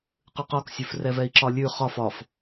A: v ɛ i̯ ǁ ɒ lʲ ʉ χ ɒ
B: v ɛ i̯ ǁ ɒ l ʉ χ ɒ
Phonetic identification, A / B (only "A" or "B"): A